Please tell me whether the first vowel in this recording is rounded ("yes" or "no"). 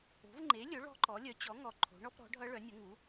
yes